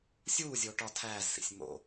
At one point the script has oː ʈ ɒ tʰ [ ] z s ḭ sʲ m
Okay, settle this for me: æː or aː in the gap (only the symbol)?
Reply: æː